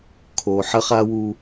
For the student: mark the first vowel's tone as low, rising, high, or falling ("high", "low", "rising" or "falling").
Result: low